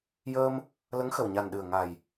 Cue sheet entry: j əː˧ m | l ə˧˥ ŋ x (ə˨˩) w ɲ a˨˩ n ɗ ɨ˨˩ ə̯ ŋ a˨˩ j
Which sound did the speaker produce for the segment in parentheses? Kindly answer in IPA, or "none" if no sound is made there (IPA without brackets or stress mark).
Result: ə˨˩